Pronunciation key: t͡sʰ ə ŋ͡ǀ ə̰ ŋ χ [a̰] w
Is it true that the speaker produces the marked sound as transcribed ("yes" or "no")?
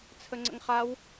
no